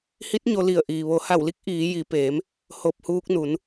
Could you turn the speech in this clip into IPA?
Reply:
h i˧˥ t̚ ɲ o˧ l i˧˩ ə̯ ʔ iː˩ ʋ o˩˧ h a˧˩ w l i˧˥ k̚ ʔ iː˩˧ j i˩˧ p eː˩˧ m | h o˧˩ p̚ h uː˧ k̚ n u˩˧ n

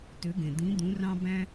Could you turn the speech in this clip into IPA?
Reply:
t ø˨˥ ɡ ẽ˩ d̪ ĩ˨˥ d̪ ũ˨˥ r ɑ̃˥ b æ̃˥

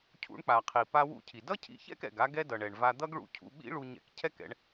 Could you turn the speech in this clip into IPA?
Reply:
cʰ ṵ˧ ɳ k͡p a˩ qʰ i˩ p a˧ w ṵ˧ cʰ i˩ d ʌ˥ cʰ ḭ˧ ç ɛ̰˥ k ɛ̰˩ ɡ a˥ ɡ ɛ˥ d ʌ˩ ɳ ɛ˩ ɳ v a˧ d̪ ʌ˥ ɡ ɭ ṵ˧ cʰ ṵ˧ ɓ ḭ˥ ɭ u˧ ɲ ɛ̰˧ k cʰ ɛ˥ k ɛ̰˧ ɳ

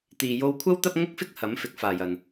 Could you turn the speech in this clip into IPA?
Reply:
t̪ iː˨ j o˧ w kʷʰ ɐ˥ w t̪ ɐ˥ p̚ ŋ ʊ˥ k̚ f ɪ˥ k̚ h ɐ˨˥ m f ɪ˨˥ k̚ f aː˨ j ɐ˨ n

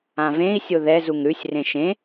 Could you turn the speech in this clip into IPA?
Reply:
ã v ẽ i̯ sʲ o ð ɛ z u ŋ ɾ ʉ sʲ r ẽ ʃ ẽ

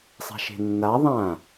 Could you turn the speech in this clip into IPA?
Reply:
sˤ a̤ ʃ e̤ nː a ðˤ ã

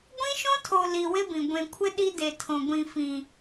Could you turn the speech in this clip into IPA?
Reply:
ɡʷ ĩ˦ ʃ õ˦ tʰ o˨ l i˨ w ɪ˦ b ĩ˨ ɡʷ ẽ˨ kʷʰ ɪ˦ ɗ i˦ d e˨ tʰ õ˨ ɡʷ ĩ˨ f ĩ˨

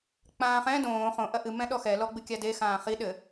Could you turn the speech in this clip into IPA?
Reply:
k͡p ãː χ ɛ̃ d õː χ õ ʔ ɐ ʔ ɨ m ɛ̃ ɗ ɔ x ɛ l ɔ ɡ͡b ɨ kʲ a d e x ãː χ i ɗ ɘ

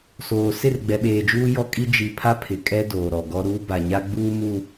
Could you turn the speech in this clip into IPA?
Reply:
s oː˨ s ɪ˦˨ r ɡ͡b ɛ˨ ɓ eː˨ d͡ʒ uː˦ j ɔ˦ kʼ i˦ d͡ʒ i˨ pʰ a˦ pʰ ɪ˨ kʼ ɛ˦ d oː˨ ɾ ɔ˨ ɡ ɔ˦ ɾ uː˦ b a˨ ɲ a˦ ɡ͡b uː˦ m u˦

